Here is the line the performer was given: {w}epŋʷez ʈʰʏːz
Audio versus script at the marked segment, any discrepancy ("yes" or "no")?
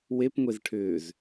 no